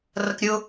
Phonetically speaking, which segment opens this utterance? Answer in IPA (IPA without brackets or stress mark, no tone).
r